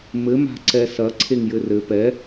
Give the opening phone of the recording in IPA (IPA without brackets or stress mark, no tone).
m